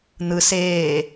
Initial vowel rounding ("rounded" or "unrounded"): unrounded